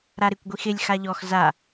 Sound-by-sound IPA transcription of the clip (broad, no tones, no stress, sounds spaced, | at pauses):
ɾ a ɾ ɪ kʷ ɡʷ i x ɪ lʲ x a ʎ ɔ x z a